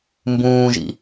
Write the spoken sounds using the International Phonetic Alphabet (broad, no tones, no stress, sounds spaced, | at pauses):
m b ũː ʒ ḭ